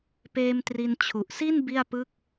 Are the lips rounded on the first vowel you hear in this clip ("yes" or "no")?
no